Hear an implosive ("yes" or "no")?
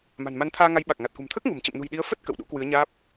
yes